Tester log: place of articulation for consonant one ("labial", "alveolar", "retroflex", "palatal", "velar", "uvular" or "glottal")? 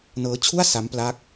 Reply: alveolar